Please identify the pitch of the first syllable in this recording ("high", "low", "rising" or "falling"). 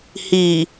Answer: low